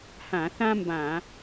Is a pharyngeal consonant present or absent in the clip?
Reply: absent